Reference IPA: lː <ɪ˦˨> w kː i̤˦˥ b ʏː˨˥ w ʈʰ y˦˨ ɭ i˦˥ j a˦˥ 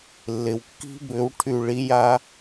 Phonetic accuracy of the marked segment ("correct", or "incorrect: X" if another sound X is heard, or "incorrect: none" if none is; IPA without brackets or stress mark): incorrect: ɪ˨